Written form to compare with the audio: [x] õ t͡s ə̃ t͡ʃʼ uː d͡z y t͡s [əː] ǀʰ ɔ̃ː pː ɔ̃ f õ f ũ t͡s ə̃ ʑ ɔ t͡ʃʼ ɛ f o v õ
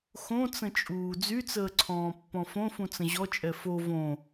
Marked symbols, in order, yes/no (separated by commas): yes, yes